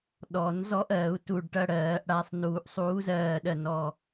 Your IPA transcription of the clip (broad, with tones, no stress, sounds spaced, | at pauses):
ɗ ɔ˨˩˦ n z ɔ˦ ʔ ɜ˨˩˦ u̯ t u˧˩ ɖ ʈ ɐ˦ ɽ ɜː˨˩˦ ʔ ɽ a˩˧˩ sˤ n uː˨˩˦ ʔ sˤ uː˨˥ z ɜː˧˩ ɗ ɜ˥˩ n ɔ˧˩